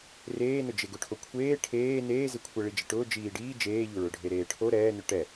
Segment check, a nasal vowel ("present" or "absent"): absent